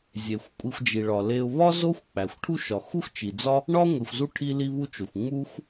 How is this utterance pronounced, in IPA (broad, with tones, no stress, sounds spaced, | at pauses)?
zʲ e˩ xʷ kʷʼ i˨ xʷ d͡ʒ i˩ ɭ ɒ˩ l e˨ ʊ̯ β ɒ˥ z o˦ xʷ k͡p æ˩ xʷ ʈʰ u˦ ʃ ɒ˩ x u˥ x t͡ʃ i˩ d͡z ɒ˦ | ɳ ɒ˦ ŋʷ e˨ xʷ z u˥ ʈʰ i˦ l i˦ β u˦ t͡ʃ o˩ xʷ ŋ͡m u˥ x